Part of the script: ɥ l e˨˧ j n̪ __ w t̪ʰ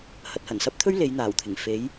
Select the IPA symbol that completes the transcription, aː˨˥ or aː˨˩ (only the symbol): aː˨˩